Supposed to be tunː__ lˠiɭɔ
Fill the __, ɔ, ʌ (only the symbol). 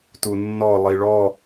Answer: ɔ